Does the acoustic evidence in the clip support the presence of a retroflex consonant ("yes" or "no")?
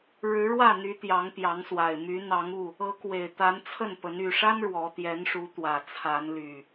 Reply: yes